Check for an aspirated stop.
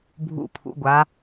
present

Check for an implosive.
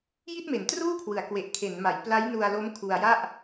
absent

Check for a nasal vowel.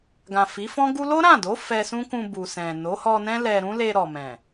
present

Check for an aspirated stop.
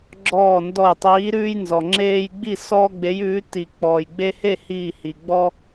absent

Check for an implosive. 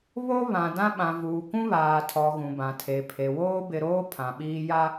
present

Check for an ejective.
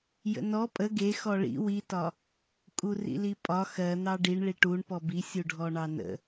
present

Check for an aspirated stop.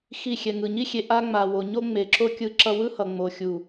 absent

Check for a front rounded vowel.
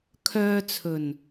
present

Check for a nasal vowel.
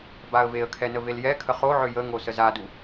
absent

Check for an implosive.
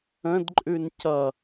absent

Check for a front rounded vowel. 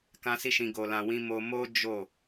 absent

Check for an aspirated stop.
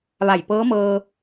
absent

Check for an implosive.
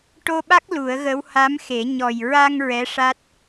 present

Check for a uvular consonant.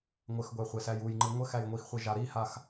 present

